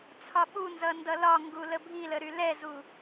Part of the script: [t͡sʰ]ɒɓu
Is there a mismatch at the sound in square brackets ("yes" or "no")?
no